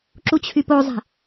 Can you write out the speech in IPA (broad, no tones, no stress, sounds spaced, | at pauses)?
ǁ u t͡ɕʰ y p o zˤ e̤